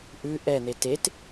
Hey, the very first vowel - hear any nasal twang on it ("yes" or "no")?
no